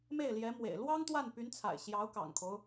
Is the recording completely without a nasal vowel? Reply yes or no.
yes